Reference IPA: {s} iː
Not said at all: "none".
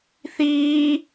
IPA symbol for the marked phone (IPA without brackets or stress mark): θ